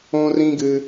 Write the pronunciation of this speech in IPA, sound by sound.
õ˦ r ĩ˦ ɡ ɨ˧

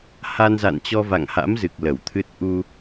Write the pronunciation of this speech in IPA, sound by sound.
h a˧ n z a̰˧˨ n t͡ɕ ɔ˧ v a̰˧˨ ŋ h a̰˧˥ m z ɨ˨˩ k̚ l ə˧˩ w t̪ʰ ɨ˦˥ t̚ ʔ u˧

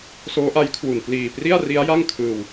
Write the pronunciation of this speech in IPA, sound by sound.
s oː˦˥ ʔ a˦˥ j kʰ w u˨˩ n p l iː˨˩ p r i˥˩ a̯ r i˦˥ a̯ j a˥˩ ŋ kʰ ɯː˧ w

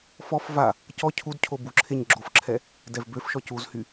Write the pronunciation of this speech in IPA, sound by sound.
f ɔ f v a | c ɔ cʰ u d cʰ o b u ǁʰ e ɲ ɡ͡ǁ o f ǁʰ ɛ | d ɛ v b ø f ʃ ɔ c u z h y

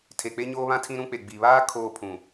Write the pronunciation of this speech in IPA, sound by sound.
tʰ e˨ k͡p e˦ ɲ oː˦ β ã˦ tʰ ĩ˦ ɾ ũ˦ k͡p e˨ ɡ͡b i˨ β aː˦ kʰ oː˦˨ pʰ ũ˨

